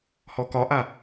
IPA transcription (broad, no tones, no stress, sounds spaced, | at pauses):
h ɔ k ɒ ʔ a